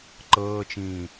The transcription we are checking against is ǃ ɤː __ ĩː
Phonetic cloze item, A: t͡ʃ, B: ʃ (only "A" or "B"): A